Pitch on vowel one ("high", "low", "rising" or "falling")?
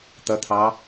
rising